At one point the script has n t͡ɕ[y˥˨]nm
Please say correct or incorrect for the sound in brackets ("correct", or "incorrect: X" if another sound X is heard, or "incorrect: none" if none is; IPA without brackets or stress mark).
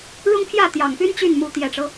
correct